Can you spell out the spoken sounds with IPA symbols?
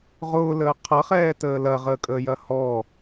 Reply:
ʁʊːləː qʰɐχɛːtəː lɐʁəːkʼəːjɐ hɔ

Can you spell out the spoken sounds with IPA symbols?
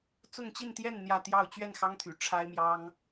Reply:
t͡sʊ˥˧ŋt͡ɕi˥˧nt̪jɛ˥˧n n̪jä˥˧t̪jɑ˥˧ʊ̯ t͡ɕɥɛ˥˩nxɑ˥ŋ t̪ʰy̰˨˩ ʈ͡ʂʰa˥ɪ̯mjɑ˥ŋ

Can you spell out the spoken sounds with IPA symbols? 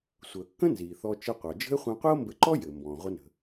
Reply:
sʷəː˩kːə̃˥ nziː˩θɔ˧ t͡ʃə˧qʷɑ˩d͡ʒə̤˥e̯ χʷĩ˧qʷi˥o̯mbɘ˧ǃɔ˥ jɘ˩ mbɔ̃ː˩ʁʷə˧nə̤˩

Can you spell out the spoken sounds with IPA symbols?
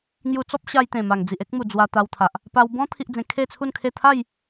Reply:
ŋju˧t͡sɔ˦p̚ɕa˧j t̪ẽ˨˩ma˨˩ŋ d͡zi˨ʔ e˦k̚mu˨˩ d͡zwa˧t̪a˧wt̪ʰa˨ʔ | pa˧wbɔ̃˦ t̪ʰi˦ʔd͡zẽ˧ kʰe˥˧t͡sʰu˥˧nkʰe˥˧ t̪ʰa˥˧j

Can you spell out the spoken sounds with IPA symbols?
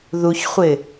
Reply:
ðuçχʷɪ

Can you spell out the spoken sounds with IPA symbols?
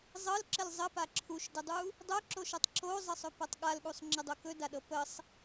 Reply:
zˤɤlǁəl zˤəpa ǁʰuʃdədˤu | dˤœǁoʃɤtˤ ǁozˤəsˤɵpɤtˤ ɠalɠusˤŋ͡ǁədˤo kɵdaɗɤ pəsˤ

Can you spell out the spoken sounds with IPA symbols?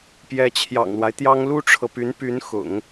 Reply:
pjɛ˧˥t͡ɕʰjɑ̰˨˩ŋlwa˦ɪ̯t̪jɑ˥ŋ lu˥ʈ͡ʂʰɤ˨py˧˥npy˧˥n xʊ̰˨˩˦ŋ

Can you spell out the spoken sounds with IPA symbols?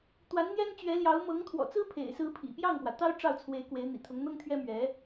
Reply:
t̪wa˧˥nn̪jɛ˥nt͡ɕɥɛ˧˥ljɑ˧˥ʊ̯ mɤ˧˥ŋt̪ʰwɔ̰˨˩t͡sɹ̩˥pʰḛ˨˩ɪ̯ sɹ̩˥ pʰḭ˨˩ pjɑ˥˩ŋpwä˩t̪ɑ˥ʊ̯ ʈ͡ʂɑ˥˩ʊ̯t͡sʰwe˧˥ɪ̯ kwe˧˥ɪ̯n̪ḭ˨˩t̪ʰʊ˧˥ŋ n̪ɤ˥ŋt̪ʰɥɛ˥mɥɛ˧˥

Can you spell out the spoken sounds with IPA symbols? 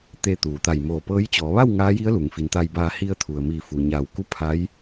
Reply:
t̪e˧t̪uː˩ t̪a˧˩jmoː˧˩pɤː˧˥j t͡ɕɔː˩˧ʋa˥˨w ŋaː˧˥ji˧˥ə̯ lu˩ŋfi˩˧nt̪a˧jbaː˧ hi˧ə̯t̪ʰu˩ə̯mi˧˩fu˩ ɲa˧˩w ku˥˨pʰa˧˥j

